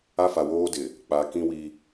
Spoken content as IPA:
a˦ f a˨ w oː˦ d ɪ˨ | k͡p a˨ k ĩ˦ w i˦

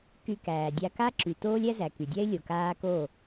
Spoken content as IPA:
k y˧ k æː˨ dʲ a˧ k a˦ ǁ y˨ t oː˦ lʲ æ˦ z æ˨ k y˨ dʲ æ˦ ɪ̯ lʲ o˨ k aː˦ k o˦˨

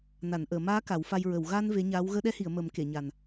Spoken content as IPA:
n a˨˩˨ n ʔ əː˨˩˨ m aː˧˥ k a˨˩˦ w f a˧ j ɹ ə˨˩˨ w ɣ a˧ n v e˧˥ ɲ aː˧˥ w ɣ əː˧ ɗ ɛ˧˥ h i˨˩˨ ə̯ m ə˨˩˦ m k e˨˩˨ ɲ a˨˩ n

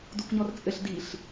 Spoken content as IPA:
d u k ɲ ɔ r t͡sʼ ɘ ɬ d i ɬ

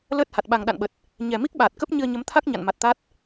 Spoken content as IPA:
l əː˦˥ t̚ h a˨˩ t̚ ɓ a˨˩ ŋ ɗ a̰˧˨ n ɓ ə˨˩ t̚ | ɲ ɛ˨˩ m i˦˥ k̚ ɓ aː˨˩ t̚ k ə˦˥ p̚ ɲ ɨ˧ ə̯ ɲ ə˨˦ m t̪ʰ a˦˥ k̚ ɲ a̰˧˨ n m a˨˩ t̚ t̪ a˦˥ t̚

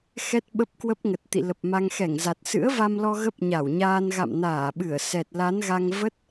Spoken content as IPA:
x ɛ˦˥ t̚ ɓ ə˦˥ p̚ k w ə˦˥ p̚ ŋ ə˨˩ t̚ t̪ ḭ˧˨ l ə˨˩ p̚ m a˧ ŋ x ɛ˧˩ ŋ z a˨˩ t̚ s ɨ̰˧˥ ə̯ v a˧ m l ɔ˧ ɣ ə˦˥ p̚ ɲ a˧˩ w ɲ aː˧ n ɣ a̰˧˨ m n aː˧˩ ɓ ɨ˧˩ ə̯ s ɛ˨˩ t̚ l a˨˦ n ɣ a˧ ŋ v ə˦˥ t̚

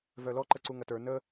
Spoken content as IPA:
v œ l ɔ ǃ ə ǀ u ŋ ɐ t ə˞ n ə

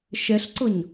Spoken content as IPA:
ʃ ɛ ɬ ǀ ɤ ɲ

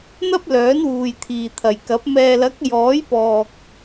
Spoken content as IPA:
n̪ ɐ˥ p̚ l œː˨˥ n w uː˨ j t̪ʰ iː˨ t̪ʰ ɐ˨ j k ɐ˨˥ p̚ m ɛː˨ l ɐ˨˥ k̚ j ɔː˨˥ j p ɔː˨ k̚

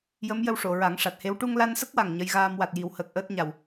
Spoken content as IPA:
j ə˧˥ m j ə˧ w ʂ o˨˩˨ ɹ a˨˩˦ ŋ ʂ a˨˩ t̚ h e˧˥ w ʈ u˧ ŋ l a˧ n s ə˦˥ k̚ w a˨˩ ŋ ɲ ə˧˥ j ɣ aː˧ m w a˨˩ t̚ j i˨˩˦ w h əː˨˩ k̚ ʔ əː˦˥ t̚ ɲ a˨˩ w

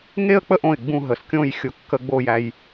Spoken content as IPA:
ŋ e˥˧ ə̯ k͡p ə˥˧ ʔ õ˧˩ ɪ̯ ɡ͡b ũ˥˧ ɦ ə˩˧ s kʲ õ˥˧ j xʲ ʊ˧ kː ə˥˧ ɡ͡b o˥˧ j æ˧ j

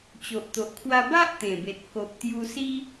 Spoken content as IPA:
t͡ɕ o˨ ʔ t̪ o˨ ʔ kʰ w a˧ b a˦ ʔ t̪ ẽ˨˩ b e˨ t̚ k o˨ p̚ t̪ j u˧ s i˦

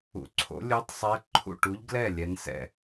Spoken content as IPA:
ṵ˧˥ ǀʰ o̰˧˥ lʲ u˧˥ tˤ sˤ ɛ˧˥ ǃʰ ṵ˥˨ ʈ u˧˥ ʎ ɡ l ɛ˥˨ lʲ ɛ˧˥ n s ɛ̰˥˨

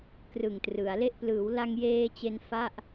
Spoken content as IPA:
k r ɯ˨˩ ŋ t r ɯ˩˦ a̯ l e˥˩ ʔ p l ɯː˩˦ w l a˧ ŋ j eː˧ t͡ɕ e˧ n f a˥˩ ʔ

